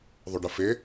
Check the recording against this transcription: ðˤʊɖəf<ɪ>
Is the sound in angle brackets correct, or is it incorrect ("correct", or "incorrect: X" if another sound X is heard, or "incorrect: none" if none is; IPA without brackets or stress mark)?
correct